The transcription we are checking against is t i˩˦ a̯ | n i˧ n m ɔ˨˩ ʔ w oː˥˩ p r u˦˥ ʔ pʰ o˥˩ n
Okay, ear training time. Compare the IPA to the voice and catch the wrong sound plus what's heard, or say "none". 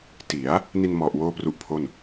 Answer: none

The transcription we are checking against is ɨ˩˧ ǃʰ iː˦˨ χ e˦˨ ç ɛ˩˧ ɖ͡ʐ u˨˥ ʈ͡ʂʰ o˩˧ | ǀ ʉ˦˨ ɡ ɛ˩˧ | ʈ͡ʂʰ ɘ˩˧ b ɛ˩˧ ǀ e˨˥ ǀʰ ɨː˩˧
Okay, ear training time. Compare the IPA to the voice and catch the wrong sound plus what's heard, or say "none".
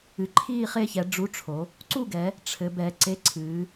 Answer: ʉ˦˨ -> u˦˨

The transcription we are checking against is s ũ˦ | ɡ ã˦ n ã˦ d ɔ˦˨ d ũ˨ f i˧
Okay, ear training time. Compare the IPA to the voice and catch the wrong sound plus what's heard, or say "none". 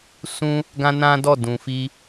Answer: none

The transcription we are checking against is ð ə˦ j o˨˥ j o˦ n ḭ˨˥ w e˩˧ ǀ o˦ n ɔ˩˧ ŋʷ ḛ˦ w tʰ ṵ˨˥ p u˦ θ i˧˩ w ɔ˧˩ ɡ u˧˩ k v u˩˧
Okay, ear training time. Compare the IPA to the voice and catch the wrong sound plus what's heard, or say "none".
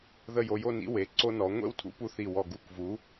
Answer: none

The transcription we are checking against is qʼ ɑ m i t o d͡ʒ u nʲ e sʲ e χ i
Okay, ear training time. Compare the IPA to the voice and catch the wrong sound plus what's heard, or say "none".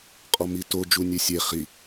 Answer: ɑ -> ɔ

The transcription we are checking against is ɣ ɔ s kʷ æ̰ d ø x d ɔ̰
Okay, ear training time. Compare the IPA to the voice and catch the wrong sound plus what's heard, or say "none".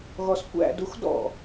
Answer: ø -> u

